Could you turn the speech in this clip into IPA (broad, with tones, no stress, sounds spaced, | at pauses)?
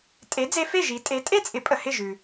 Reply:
tʼ e˩˥ d͡z e˧ f e˥˩ ʒ i˩˥ tʼ e˩˥ tʼ e˥˩ t͡sʼ ɪ˩˥ pʼ ə˩ h ɪ˥˩ ʒ ʉ˩